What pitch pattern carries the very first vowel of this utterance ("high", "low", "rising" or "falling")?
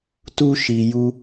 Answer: high